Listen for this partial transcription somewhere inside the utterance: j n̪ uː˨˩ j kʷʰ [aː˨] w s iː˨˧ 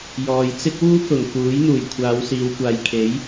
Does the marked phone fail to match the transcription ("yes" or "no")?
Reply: yes